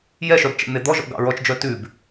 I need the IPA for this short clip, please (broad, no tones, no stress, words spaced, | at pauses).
jɛʃœb t͡ʃɛ̰n̪ed̪ɔʒɔ̰ ɡɑ̰ɹɔt͡ʃd͡ʒœ tʉb